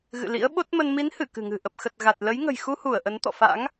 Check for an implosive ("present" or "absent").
present